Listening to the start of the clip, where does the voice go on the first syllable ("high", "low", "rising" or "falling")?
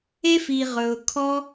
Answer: high